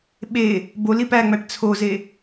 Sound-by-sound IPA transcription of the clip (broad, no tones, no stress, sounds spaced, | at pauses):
ɓ e | b o l i p æ ŋ͡m æ ʈ t͡sʰ o z e